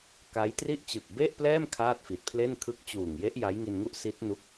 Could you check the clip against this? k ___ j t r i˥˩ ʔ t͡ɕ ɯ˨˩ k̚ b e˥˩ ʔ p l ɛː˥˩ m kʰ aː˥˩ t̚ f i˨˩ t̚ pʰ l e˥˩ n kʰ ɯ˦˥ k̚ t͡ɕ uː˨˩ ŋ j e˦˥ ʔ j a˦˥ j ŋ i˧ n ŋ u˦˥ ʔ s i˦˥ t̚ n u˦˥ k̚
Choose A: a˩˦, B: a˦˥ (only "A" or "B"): B